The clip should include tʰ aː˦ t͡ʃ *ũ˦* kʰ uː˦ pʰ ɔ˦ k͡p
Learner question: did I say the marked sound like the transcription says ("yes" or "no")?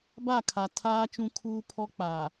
yes